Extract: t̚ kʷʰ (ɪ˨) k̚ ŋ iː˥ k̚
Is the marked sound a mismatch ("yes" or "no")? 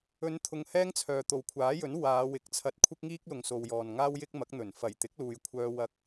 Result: yes